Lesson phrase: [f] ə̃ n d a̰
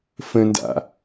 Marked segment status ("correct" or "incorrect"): correct